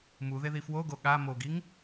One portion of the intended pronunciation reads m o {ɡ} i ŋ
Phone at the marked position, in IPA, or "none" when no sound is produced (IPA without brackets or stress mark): ɡ